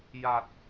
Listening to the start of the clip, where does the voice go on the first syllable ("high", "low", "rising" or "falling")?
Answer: low